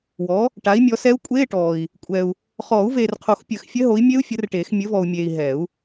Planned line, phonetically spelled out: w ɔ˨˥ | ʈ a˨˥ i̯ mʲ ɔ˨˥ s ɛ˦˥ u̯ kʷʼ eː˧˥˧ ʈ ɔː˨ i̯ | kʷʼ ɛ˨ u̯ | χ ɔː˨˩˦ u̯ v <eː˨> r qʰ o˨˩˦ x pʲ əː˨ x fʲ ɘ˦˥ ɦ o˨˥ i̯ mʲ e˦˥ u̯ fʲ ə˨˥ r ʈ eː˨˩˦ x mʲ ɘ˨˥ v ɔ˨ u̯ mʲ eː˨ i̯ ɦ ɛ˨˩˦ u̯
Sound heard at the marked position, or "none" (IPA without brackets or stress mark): eː˨